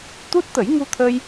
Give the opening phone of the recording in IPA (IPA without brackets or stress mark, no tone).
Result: t̪